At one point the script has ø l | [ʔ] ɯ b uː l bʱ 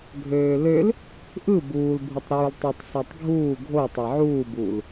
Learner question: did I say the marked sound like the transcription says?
yes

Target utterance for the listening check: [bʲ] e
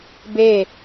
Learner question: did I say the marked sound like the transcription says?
no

